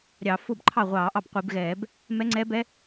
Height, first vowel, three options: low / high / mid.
low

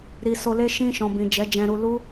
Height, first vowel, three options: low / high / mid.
high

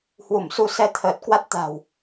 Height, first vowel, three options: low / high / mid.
high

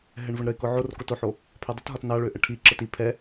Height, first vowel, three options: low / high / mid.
mid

